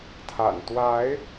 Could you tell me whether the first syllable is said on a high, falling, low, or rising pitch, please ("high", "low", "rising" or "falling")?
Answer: low